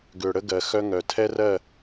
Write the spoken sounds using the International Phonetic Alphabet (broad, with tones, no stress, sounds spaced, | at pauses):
ɡ ʏː˨ ɽ ə˦ ɡ ɜ˨ x œ˦ ŋ œ˨ tʰ ɛ˦ r ɜ˦˨